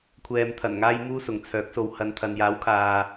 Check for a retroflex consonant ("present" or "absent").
absent